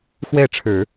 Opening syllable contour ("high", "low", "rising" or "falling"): falling